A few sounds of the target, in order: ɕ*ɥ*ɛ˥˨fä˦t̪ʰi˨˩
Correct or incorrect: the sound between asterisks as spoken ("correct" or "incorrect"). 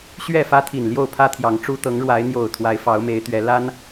correct